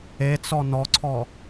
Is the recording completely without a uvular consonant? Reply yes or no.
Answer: yes